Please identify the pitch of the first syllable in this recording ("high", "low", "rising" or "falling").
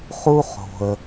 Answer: high